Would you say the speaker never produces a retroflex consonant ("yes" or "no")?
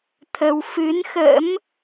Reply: yes